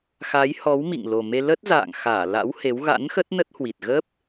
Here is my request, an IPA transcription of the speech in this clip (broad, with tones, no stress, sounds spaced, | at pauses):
x a˨˦ j h ɔ˨˦ w m ḭ˧˨ ŋ l o˨˩ m e˧ l ə˦˥ t̚ z a̰ː˧˨ ŋ x aː˧˩ l a̰˧˥ w h e˨˦ w ɣ a̰˧˥ n x ə˦˥ t̚ n ə˦˥ t̚ h w i˨˩ t̚ ɣ ə˦˥ p̚